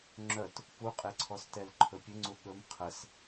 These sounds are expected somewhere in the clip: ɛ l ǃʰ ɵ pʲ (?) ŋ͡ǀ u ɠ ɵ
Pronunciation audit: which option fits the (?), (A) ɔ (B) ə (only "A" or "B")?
B